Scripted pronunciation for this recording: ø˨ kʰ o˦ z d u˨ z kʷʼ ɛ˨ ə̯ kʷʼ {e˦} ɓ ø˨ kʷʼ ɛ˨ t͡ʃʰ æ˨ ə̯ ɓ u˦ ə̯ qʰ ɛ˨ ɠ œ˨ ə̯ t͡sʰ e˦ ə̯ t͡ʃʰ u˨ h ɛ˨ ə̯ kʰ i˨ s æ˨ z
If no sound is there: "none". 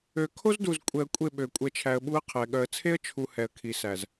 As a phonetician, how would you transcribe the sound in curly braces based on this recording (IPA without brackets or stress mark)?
e˦˨